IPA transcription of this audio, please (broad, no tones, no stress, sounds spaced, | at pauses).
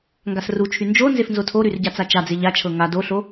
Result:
ŋ ɡ a s r u t͡ʃʰ y n d͡ʒ o n z e f n z o tʰ o ɾ y r ɟ a t͡s a t͡ʃ a d͡z e ʎ a t͡ʃʰ ɤ ŋ a d o ɬ o